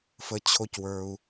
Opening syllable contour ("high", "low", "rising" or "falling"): high